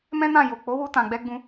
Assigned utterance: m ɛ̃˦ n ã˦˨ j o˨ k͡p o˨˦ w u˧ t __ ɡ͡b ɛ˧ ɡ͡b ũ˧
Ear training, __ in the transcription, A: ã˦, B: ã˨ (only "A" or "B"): B